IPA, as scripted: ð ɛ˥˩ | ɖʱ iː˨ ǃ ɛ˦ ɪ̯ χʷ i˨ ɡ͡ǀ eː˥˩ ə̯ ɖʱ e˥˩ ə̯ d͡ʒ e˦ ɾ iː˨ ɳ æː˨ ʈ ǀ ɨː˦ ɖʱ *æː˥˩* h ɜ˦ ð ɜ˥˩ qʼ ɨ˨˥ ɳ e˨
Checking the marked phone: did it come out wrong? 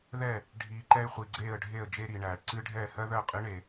yes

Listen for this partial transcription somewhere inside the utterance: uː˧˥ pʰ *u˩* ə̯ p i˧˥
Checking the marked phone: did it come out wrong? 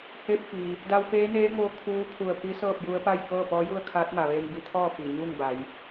yes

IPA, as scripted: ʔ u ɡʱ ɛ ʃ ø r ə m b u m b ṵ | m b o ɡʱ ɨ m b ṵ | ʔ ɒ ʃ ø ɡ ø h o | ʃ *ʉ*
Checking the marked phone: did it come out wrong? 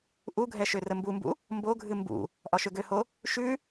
no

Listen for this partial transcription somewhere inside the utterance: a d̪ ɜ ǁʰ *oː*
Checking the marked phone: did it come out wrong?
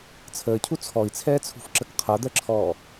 yes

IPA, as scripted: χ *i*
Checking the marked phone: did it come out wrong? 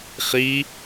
no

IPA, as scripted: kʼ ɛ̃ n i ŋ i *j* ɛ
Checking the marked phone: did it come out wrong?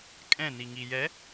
no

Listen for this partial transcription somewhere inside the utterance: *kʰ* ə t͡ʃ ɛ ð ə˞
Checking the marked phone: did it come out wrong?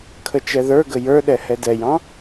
no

